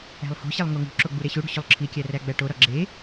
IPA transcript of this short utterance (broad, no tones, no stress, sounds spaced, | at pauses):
æ̤ lˠ h o̤ ɕ e lˠ ŋ o ŋ ṳ ǁ o ɡ͡b u ɾ e ɕ u ɽ ṳ ɕ u lˠ ǁʰ i kʲ æ r æ ɡ͡b æ ʈ o ɾ ɒ ɡ͡ǁ e